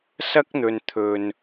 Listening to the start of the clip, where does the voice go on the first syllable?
high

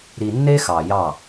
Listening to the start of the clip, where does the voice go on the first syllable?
low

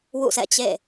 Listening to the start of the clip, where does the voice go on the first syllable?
falling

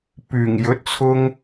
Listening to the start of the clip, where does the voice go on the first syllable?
low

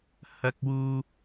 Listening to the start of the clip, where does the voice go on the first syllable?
high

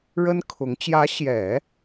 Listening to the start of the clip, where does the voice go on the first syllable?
high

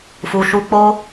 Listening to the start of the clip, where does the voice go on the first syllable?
low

